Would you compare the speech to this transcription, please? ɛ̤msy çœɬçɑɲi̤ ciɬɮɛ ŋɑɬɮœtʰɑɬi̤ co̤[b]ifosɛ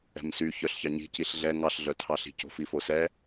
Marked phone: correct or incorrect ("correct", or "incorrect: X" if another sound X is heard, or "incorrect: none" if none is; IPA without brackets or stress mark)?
incorrect: f